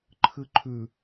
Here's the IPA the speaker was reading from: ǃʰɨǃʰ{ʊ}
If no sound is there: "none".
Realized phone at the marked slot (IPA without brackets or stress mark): ʉ